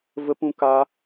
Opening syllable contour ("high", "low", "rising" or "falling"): high